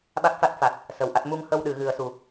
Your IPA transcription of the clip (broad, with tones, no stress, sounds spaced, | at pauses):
ɓ a˦˥ k̚ f a˦˥ t̚ f a˨˩ t̚ | s ə˨˩ w ʔ a˦˥ t̚ m u˧ ŋ h ə˧ w ɗ ɨ˨˩˨ ɣ ɨ˨˩˦ ə̯ s u˨˩